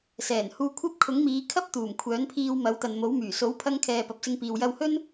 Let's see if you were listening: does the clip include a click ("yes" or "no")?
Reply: no